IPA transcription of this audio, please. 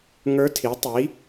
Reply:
ŋ ə˞˧˥ tʰ i˩˥ tˤ i˩˥

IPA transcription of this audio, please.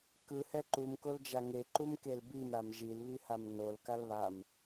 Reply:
k ɯ h ɛ ǃ u m k o l d͡ʒ a ŋ e ǃ u m k e l b i m ɾ a m ʒ i l β i h a m n o l k a l β a m

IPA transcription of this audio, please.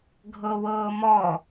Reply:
ɡʱ ɤ w ɤː m ɔ

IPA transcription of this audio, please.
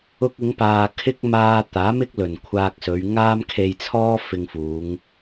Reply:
ʊ˧ k̚ ɪ˨˧ ŋ p aː˨ kʰ ɪ˥ k̚ m aː˧ t̪ aː˨˥ m ɪ˥ k̚ l ɵ˨˩ n kʷʰ aː˧ k̚ s ɵ˨˧ ɥ ŋ aː˥ m kʰ e˧ j t͡sʰ ɔː˥ f ɪ˨ ŋ f uː˨˧ ŋ

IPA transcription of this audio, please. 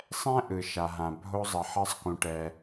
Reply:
sˤ ɛ̃˥ ʔ ɯ˩ ʃ a˩ ɦ ã˩ bʱ o˧ zˤ ʌ˩ ħ ʌ˧ sˤ k ũ˩ ʈ ɛ˩

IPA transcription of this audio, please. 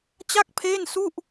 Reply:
t͡ɕ a˥˩ k̚ pʰ eː˥˩ n s u˥˩ ʔ

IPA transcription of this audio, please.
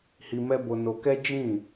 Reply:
h i˧ m ɛ˦ b o˧ n o˧ k ɛ˦ d͡ʒ ĩ˦˨

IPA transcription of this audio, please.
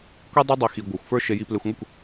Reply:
kʷ i˦ dˤ e˦ dˤ i˧ x i˧ ɡʷ ə˞˧ xʷ f ə˞˦ ʃ e˧ j i˧ p l e˧ xʷ ŋʷ ə˦˨ kʷ

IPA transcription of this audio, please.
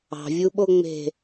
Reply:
ɑ̤ vʲ u ɓ o ŋ͡m e̤

